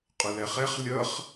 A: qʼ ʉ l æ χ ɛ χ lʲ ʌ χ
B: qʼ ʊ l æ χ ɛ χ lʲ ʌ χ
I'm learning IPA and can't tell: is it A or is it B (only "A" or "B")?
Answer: B